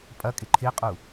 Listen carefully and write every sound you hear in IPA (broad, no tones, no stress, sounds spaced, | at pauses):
pʼ ɐ kʼ ɪ ǃʰ ɪ qʼ u